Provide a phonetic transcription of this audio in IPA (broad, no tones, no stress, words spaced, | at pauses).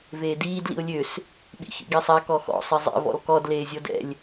veːdiːd lḭʊ̯lʲøs | ɓḭxḭɡisˤa kɔxɔ̰ sˤizˤɛ̰ vɔ̰lkɔd leːzʲɔdɛ̰lʲ